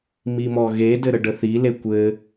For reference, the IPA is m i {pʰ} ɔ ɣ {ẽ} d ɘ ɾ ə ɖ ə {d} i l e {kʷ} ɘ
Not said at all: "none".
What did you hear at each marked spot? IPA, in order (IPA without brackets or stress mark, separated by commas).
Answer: m, e, θ, kʷ